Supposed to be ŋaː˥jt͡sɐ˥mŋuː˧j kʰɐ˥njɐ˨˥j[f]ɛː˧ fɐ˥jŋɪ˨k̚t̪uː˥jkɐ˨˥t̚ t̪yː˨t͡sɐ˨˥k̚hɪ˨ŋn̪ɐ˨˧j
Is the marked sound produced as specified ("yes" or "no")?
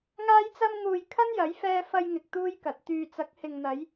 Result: yes